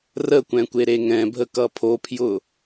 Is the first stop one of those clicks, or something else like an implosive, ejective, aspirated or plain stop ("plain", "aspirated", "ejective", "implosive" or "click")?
plain